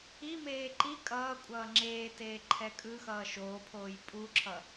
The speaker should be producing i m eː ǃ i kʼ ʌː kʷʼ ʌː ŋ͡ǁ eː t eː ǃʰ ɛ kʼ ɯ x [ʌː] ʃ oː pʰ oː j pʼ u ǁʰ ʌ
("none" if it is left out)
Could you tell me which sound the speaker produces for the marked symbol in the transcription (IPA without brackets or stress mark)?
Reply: ʌː